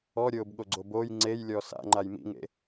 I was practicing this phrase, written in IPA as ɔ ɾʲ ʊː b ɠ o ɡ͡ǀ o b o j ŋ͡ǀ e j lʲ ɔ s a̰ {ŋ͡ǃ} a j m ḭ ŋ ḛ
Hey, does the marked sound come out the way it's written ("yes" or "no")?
yes